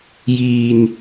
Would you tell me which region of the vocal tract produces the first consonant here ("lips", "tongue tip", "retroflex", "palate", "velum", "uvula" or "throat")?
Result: palate